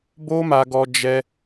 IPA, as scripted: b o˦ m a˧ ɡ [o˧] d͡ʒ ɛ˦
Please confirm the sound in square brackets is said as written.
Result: no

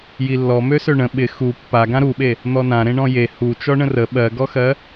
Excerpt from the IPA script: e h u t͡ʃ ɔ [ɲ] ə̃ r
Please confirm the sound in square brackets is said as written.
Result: no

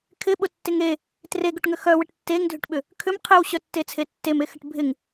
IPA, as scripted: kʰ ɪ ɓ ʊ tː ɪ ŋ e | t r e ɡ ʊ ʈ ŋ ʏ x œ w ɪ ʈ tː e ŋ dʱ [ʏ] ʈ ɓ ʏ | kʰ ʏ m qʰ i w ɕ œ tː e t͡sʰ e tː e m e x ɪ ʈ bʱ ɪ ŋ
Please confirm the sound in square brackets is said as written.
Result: yes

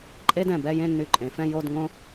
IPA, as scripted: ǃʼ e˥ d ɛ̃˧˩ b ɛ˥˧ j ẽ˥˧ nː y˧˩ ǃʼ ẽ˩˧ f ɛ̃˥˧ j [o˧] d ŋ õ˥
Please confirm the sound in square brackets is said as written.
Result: no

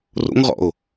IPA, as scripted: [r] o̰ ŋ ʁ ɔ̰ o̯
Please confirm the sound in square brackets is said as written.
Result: yes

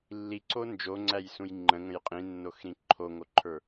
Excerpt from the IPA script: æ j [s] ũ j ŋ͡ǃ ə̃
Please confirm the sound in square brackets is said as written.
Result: yes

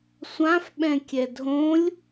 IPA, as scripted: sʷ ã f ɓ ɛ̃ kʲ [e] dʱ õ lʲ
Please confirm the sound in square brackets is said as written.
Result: no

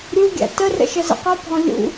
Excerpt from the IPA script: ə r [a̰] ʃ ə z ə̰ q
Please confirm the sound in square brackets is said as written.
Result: no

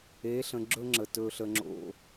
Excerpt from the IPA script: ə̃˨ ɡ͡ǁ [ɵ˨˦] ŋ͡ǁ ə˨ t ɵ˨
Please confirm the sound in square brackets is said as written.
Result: no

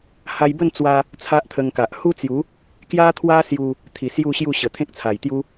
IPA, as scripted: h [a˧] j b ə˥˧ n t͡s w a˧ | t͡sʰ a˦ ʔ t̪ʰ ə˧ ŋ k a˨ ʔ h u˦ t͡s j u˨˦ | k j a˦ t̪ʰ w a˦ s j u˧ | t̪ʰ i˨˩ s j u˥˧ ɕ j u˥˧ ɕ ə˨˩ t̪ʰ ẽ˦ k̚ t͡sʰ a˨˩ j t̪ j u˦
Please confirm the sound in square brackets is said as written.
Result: yes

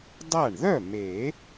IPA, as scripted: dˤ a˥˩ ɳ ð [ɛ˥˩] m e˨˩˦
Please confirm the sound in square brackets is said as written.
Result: no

